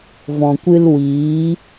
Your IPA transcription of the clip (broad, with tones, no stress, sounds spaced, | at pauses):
v ɔ̃˨ kʷ ɨ˧ l w iː˨˦